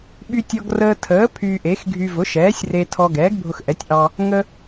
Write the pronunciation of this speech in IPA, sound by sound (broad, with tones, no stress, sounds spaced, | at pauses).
ɓ y˧ tʲ ɔ˧ ɡ r əː˧ tʰ əː˩˥ pʰ yː˧ ʔ e˩˥ x ɡʱ y˧ v ʊ˩˥ ʃ ɛː˩˥ sʲ r e˧ tʰ ɔ˧ ɡ ɛː˩˥ ɡ bʱ ʊ˧ x ʔ ɛ˩˥ tʲ ʔ ɑ˧ | ŋ ə˧